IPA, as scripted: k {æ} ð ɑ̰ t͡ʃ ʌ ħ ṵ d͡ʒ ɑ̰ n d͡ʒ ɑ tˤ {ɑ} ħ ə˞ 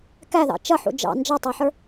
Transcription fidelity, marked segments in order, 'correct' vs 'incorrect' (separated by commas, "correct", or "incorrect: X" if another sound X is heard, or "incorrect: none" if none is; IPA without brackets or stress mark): correct, correct